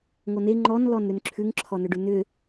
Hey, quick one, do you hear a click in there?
yes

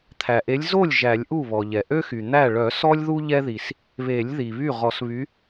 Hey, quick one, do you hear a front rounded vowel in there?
yes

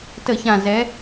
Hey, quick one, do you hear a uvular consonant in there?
no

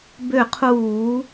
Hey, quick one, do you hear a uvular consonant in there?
yes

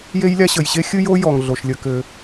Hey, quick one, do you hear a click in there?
no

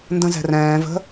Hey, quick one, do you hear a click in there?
no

